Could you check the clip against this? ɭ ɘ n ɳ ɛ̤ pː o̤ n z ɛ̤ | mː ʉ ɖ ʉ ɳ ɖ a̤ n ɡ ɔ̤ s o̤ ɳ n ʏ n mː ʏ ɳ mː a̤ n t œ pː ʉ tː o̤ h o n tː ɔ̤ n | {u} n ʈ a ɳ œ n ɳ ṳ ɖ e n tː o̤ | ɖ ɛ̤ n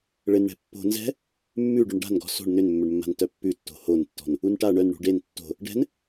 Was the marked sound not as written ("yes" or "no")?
no